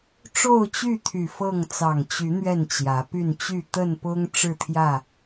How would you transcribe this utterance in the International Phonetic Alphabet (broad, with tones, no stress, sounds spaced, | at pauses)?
ʈ͡ʂ o˥˨ ʊ̯ t͡ɕ y˥˨ t̪ʰ y˨˩ f ɤ˥˨ ŋ t͡s ɑ˨˩ ŋ t͡ɕ y˨˦ n̪ ɥ ɛ˥˨ n t͡ɕ j ä˨˦ p y˥˨ n t͡ɕ y˥˨ t̪ ə˥˨ n p ʊ˦ ŋ ʈ͡ʂ ɻ̩˥˨ t̪ʰ j ä˥˨